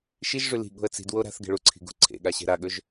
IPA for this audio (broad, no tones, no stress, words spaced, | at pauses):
ʃiʒʐʉ li̤ ɠo̤ə̯t͡si̤dwo ɾa̤θɡe̤ ɭuǀʰi̤ ɡṳ ǀʰḛɠa ɕe̤ɾaɠɵʒ